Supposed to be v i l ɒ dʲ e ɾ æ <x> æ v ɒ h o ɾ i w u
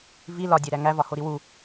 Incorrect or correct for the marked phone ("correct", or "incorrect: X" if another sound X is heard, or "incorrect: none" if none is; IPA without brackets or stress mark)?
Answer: incorrect: ŋ